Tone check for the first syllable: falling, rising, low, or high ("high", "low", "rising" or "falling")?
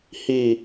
low